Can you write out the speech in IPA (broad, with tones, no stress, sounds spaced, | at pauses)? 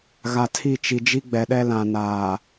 ɣ a˨ tʰ i˦˨ t͡ʃ i˨ d͡ʒ i˦ ɡ͡b ɛ˨ ɗ ɛ˦ l ã˨ n aː˨